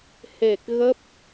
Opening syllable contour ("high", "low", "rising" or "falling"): low